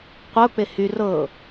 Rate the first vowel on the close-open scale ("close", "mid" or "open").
mid